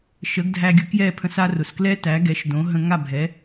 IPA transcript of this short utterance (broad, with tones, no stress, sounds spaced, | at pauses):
ʃ ə˩˥ ɡ dʱ æ˧ ɡʲ ʊ˩˥ k j ɛ˥˩ pʰ ə̃˧ s a˧ r ʊ˩ s k l ɛ˥ t æ˩˥ ɡ ɛ˩˥ ʃ d õ˩˥ ɦ ə̃˧ ŋ a˥˩ bʱ ɛ˩˥